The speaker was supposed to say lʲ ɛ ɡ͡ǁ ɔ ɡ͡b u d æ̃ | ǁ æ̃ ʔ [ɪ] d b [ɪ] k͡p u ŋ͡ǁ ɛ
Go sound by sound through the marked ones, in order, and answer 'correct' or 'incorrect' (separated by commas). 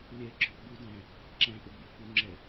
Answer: correct, correct